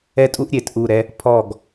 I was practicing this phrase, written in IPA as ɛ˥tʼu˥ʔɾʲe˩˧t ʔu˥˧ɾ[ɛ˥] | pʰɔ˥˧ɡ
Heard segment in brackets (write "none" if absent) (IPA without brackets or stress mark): ɛ˥